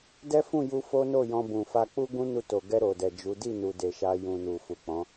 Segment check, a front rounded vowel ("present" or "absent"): absent